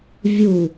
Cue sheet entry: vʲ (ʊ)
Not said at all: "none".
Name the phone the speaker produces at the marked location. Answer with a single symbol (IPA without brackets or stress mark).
u